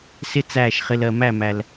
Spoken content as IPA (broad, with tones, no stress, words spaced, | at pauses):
sɪ˦t͡sæː˦˨ʃχɪ˧l ɜ˨mæ˦˨mæ˨l